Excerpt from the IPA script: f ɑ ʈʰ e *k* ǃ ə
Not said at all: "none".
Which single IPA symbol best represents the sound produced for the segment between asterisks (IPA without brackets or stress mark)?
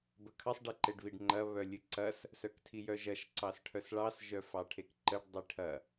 k